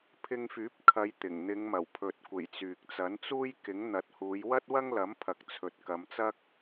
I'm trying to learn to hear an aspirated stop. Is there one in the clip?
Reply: yes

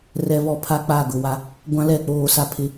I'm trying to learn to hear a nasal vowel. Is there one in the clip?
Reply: yes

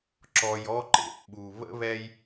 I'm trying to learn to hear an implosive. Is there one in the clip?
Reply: yes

